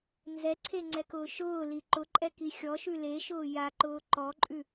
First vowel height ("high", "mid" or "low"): mid